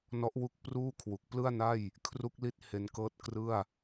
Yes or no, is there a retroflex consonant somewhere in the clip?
no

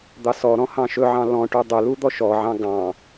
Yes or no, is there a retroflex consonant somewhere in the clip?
yes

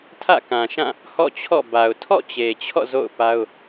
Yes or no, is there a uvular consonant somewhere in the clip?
no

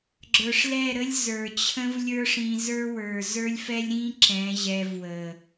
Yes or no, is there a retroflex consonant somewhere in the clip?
yes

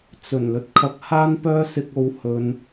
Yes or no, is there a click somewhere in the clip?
no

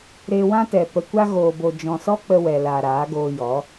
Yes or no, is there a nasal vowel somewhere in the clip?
yes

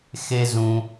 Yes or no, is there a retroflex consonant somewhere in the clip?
no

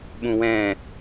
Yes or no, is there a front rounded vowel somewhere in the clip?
no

